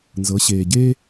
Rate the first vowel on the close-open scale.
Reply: mid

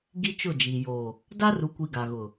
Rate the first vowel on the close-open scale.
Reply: close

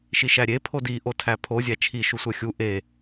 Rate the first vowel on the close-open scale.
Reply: close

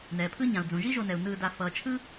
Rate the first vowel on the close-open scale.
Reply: mid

